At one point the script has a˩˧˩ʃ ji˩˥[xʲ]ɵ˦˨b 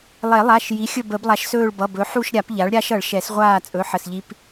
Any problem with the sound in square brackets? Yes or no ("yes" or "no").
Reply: no